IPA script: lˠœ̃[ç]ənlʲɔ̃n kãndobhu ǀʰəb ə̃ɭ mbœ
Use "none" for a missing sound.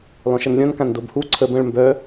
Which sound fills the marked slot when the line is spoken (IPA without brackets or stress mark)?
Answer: ʃ